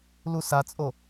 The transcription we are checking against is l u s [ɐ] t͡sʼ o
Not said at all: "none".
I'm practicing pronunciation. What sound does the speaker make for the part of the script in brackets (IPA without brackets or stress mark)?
a